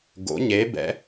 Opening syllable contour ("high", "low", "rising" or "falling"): rising